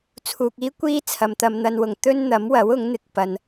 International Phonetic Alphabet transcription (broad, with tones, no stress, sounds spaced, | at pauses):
t͡sʰ uː˨ k̚ iː˥ kʷ iː˥ t͡sʰ ɐ˨˧ m t̪ ɐ˧ m n̪ ɐ˧ n w ʊ˨ ŋ t̪ ɵ˥ n n̪ ɐ˨˥ m w ɐ˨˥ w ʊ˨˥ ŋ n̪ ɪ˧ k̚ p ɐ˨ n